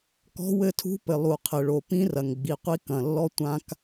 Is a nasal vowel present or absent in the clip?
present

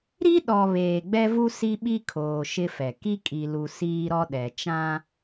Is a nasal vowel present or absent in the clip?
present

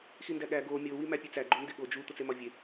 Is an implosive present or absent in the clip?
present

